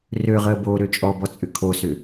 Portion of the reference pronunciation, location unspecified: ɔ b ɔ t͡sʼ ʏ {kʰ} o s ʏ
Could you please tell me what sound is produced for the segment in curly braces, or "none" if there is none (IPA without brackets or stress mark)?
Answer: kʰ